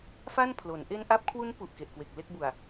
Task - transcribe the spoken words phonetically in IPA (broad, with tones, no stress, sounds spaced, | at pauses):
f a˥˩ n pʰ l o˩˦ n ʔ e˧ n ʔ a˦˥ p̚ kʰ w u˦˥ n p u˨˩ ʔ k e˨˩ ʔ k w e˨˩ k̚ l e˥˩ k̚ b u˨˩ a̯